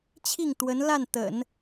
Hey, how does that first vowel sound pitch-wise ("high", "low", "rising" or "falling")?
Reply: falling